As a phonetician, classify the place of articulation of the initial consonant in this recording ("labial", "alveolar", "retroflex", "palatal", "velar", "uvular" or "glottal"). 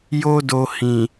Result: palatal